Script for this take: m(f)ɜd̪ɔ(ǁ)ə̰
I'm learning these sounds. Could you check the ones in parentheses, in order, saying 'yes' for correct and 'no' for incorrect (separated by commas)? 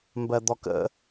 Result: no, no